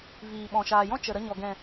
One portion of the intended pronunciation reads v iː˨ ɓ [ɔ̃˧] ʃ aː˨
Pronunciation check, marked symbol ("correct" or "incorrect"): incorrect